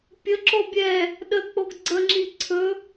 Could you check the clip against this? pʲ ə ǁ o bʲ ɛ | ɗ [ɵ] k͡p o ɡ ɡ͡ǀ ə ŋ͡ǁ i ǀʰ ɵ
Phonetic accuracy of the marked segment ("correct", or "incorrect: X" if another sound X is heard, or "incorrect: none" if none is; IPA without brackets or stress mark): incorrect: ə